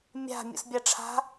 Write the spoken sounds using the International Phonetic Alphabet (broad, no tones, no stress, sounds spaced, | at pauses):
mʲ a̤ mʲ ṵ s bʲ a ʈ͡ʂʰ a̤